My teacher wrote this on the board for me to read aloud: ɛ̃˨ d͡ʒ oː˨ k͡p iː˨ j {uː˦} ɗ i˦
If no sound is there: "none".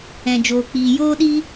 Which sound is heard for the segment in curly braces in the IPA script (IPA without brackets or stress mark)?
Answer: oː˦